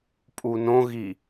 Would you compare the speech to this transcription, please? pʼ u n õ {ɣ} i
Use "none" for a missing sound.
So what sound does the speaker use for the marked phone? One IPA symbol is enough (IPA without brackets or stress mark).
ɣ